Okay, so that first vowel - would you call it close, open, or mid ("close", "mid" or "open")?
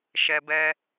mid